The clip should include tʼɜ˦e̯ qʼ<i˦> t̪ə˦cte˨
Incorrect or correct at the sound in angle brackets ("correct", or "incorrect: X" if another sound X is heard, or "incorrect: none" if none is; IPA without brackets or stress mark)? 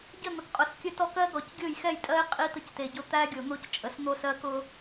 correct